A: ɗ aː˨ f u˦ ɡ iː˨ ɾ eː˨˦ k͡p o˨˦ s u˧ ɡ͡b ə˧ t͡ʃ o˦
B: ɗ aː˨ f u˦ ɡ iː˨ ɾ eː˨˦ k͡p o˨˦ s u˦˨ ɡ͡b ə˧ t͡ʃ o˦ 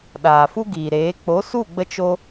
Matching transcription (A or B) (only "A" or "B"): B